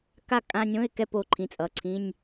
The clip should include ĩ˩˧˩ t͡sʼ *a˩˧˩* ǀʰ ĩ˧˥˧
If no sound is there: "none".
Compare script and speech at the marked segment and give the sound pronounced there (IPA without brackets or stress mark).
ʌ˩˧˩